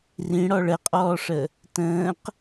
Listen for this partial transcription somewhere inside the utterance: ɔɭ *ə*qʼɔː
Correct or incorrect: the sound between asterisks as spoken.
correct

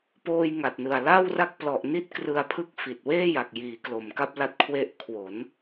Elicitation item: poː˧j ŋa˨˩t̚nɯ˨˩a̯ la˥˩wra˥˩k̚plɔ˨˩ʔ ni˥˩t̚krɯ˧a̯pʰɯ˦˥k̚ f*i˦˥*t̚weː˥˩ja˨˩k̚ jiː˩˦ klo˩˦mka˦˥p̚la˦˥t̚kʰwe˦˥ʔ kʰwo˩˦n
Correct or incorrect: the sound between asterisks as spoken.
incorrect: i˨˩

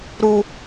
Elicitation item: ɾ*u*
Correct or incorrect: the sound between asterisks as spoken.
correct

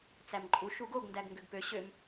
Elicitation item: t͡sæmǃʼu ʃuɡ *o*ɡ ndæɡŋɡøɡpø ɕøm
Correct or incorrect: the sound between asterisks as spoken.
correct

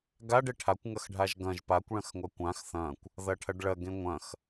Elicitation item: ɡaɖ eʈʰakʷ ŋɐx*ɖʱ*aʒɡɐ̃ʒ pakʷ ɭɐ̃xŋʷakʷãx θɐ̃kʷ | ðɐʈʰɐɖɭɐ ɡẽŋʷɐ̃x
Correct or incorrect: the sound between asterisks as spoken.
correct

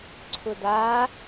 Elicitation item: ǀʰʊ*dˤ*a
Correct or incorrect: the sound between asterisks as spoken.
incorrect: d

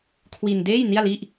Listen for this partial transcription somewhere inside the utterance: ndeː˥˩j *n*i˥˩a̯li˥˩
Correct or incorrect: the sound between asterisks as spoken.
correct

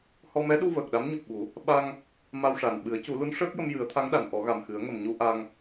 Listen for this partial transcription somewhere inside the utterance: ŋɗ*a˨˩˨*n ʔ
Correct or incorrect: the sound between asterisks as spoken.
correct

